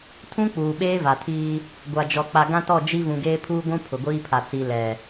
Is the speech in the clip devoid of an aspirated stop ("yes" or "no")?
no